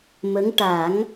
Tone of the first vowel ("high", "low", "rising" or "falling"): rising